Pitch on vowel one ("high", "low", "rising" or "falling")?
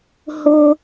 high